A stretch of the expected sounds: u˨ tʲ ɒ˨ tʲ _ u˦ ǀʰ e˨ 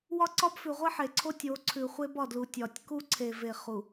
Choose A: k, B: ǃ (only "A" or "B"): A